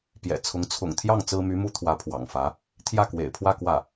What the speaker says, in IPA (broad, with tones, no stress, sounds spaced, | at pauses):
p j ɛ̰˨˩ t͡sʰ ʊ˧˥ ŋ t͡sʰ ʊ̰˨˩ ŋ t̪ʰ j ɑ˥˩ ŋ t͡s ɹ̩˥ m y˧˥ m u˥ t̪ʰ w ä˧˥ pʰ w ɑ̰˨˩ ŋ f ä˧˥ | t̪ʰ j ä˥˩ k w ḛ˨˩ ɪ̯ pʰ w ä˥˧ k w ä˥˩